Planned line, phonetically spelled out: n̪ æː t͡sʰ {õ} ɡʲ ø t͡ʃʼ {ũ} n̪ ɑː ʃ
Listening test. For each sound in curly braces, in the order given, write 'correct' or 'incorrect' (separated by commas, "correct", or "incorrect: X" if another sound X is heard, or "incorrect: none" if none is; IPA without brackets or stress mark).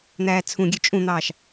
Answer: incorrect: ũ, correct